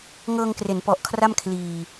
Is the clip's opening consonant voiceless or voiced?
voiced